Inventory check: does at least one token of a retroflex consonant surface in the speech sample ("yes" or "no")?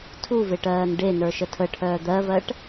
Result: yes